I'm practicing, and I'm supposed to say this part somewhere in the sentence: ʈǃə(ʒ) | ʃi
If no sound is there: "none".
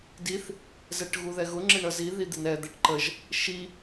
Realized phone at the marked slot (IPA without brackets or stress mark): ʒ